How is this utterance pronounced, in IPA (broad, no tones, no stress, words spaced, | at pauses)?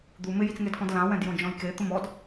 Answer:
d̪u mɪjit͡sŋedkɔ̃d lãwɛ̃djõ d͡ʒɔ̃jke t̪ʊmɔd